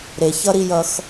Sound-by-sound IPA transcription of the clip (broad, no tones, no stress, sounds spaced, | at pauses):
ɾ e ç ʌ ɾ i j ʌ x